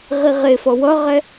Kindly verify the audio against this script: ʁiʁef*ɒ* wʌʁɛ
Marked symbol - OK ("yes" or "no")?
no